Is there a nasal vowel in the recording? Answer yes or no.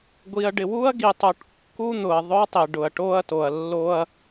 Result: no